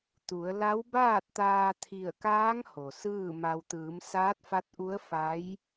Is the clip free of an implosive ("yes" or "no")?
yes